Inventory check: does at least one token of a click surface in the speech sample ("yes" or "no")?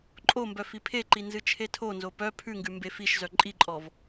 yes